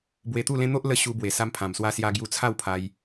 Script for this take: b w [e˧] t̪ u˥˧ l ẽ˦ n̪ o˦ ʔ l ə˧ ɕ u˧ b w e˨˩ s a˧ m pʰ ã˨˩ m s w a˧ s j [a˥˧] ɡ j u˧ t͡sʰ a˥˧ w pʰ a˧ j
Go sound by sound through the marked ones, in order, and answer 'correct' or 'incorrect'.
correct, incorrect: a˧

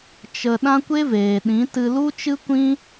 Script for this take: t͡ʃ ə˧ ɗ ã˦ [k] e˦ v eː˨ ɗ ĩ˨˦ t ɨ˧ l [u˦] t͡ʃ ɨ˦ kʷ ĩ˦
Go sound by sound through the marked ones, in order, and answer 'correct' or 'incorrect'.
incorrect: kʷ, correct

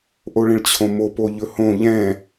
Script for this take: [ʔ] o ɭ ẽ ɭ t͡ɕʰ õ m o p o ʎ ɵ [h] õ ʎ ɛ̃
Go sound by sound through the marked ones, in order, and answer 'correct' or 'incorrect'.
correct, correct

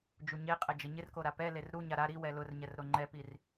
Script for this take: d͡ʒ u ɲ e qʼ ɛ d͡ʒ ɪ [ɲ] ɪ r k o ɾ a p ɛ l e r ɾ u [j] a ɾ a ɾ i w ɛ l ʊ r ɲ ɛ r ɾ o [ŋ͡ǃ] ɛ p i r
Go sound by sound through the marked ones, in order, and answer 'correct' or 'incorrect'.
correct, incorrect: ɲ, correct

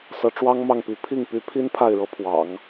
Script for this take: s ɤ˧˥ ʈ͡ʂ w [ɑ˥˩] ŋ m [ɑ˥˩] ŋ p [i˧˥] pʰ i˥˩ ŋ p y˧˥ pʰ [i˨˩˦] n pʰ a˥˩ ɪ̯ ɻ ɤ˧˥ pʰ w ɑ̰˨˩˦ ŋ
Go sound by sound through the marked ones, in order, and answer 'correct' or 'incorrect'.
incorrect: ɑ˥, correct, correct, incorrect: i˥

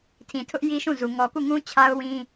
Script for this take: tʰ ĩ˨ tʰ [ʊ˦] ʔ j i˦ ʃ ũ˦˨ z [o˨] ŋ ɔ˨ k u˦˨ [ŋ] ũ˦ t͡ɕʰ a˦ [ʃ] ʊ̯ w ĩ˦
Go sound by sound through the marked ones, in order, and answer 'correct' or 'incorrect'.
correct, incorrect: u˨, correct, incorrect: none

